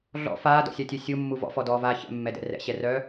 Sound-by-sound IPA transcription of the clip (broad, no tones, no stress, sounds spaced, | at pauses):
ɮ ɔ̰ f aː d ɔ̰ sʲ a tʲ œ sʲ u mː u v ɔ̰ f ɔ d ɔː v aː ç ɛ̰ mː ɛ d ɛ̰ r ɛ̰ ɕ ɛ r œː